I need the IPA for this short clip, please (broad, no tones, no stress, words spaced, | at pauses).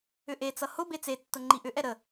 ʏʔet͡sʌ hʊ bet͡setːʊ ŋ͡ǃiʔʏʔɛ ɾə